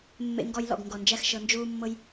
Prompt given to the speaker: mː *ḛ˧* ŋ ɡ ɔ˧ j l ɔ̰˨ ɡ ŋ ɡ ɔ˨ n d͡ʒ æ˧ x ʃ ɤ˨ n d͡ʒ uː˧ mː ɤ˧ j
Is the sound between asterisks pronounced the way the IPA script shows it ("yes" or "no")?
yes